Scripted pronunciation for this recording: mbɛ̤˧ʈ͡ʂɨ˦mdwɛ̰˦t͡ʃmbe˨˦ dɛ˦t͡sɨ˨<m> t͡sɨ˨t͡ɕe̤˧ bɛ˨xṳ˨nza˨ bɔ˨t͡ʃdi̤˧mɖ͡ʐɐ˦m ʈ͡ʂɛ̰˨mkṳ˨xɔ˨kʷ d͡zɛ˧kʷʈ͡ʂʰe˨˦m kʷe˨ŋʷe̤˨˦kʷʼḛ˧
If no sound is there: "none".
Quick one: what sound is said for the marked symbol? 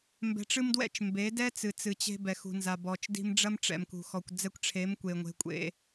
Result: none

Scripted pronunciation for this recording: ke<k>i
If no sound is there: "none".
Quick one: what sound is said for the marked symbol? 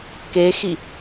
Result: x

